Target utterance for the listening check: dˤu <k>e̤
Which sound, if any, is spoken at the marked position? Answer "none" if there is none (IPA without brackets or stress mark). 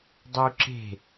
ǁ